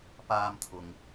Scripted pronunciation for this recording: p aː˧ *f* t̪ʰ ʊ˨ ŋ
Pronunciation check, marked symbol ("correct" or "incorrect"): incorrect